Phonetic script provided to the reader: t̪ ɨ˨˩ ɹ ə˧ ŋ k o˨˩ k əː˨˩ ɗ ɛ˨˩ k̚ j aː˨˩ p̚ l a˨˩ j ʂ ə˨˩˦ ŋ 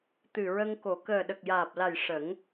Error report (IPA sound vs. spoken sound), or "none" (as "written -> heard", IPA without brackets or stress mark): ɛ˨˩ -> ə˨˩